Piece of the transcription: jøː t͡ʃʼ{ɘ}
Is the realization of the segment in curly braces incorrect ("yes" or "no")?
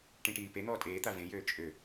yes